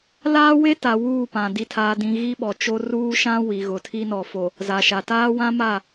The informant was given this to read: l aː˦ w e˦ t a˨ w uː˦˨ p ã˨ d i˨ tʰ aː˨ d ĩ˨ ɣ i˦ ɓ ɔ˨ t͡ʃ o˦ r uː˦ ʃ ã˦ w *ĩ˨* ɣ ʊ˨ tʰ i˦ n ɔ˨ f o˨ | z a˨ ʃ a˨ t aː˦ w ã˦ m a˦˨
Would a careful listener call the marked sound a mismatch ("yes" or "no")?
yes